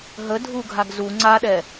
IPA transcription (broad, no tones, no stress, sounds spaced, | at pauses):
ɦ ə dʱ u ɡʱ a ɡ z u ŋ͡ǀ a ɗ ɛ